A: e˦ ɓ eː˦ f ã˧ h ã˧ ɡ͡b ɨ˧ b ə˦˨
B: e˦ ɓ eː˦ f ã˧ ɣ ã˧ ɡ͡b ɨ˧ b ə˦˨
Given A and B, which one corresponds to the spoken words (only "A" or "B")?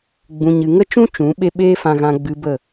B